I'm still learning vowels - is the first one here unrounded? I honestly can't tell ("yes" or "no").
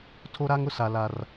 no